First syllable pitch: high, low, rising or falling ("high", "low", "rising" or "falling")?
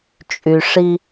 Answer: low